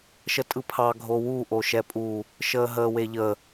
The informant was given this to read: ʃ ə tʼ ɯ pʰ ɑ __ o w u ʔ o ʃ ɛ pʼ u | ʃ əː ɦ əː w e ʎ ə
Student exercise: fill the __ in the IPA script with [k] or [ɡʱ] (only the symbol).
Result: ɡʱ